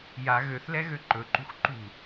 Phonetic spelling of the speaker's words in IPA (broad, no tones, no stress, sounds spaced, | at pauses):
j a ɣ ø θ l ɛ ɣ ø ǃ ɵ ǃ ṳ x ǃ ṳ